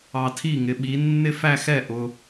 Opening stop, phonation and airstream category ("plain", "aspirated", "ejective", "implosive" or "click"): aspirated